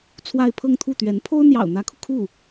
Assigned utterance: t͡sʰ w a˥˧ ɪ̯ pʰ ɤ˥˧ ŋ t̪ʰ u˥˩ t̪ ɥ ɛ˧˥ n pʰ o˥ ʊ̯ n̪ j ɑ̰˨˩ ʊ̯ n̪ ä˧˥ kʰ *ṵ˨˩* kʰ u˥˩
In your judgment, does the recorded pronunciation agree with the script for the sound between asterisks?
no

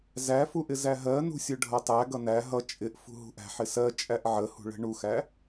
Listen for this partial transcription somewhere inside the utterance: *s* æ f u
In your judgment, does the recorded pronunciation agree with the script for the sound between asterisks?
no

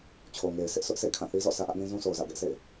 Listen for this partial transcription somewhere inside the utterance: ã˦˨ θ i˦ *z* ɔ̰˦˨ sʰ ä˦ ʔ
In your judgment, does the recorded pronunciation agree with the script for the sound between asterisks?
yes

